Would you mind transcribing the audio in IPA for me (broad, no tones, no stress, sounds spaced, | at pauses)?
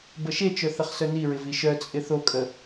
b ə ʃ e t͡ʃ œ θ ə χ s œ n i ɹ ɪ v i ʃ œ t͡sʼ ɪ θ o kʼ ə